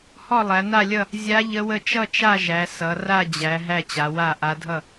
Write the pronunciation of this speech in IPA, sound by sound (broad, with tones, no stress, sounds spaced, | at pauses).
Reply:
h ɔ˥˨ lˠ æ˩˧ n a˥˨ lʲ ʌ˥˨ | zʲ a˧˥ ʎ ə˧˥ w ə˥˨ t͡ʃ ʌ˥˨ t͡ʃ a˥˨ ʒ æ˩˧ s ʌ˩˧ r a˥˨ d͡ʑ æ˩˧ ɦ æ˥˨ t͡ɕ a˩˧ w a˥˨ ʔ a˧˥ dʱ ʌ˥˨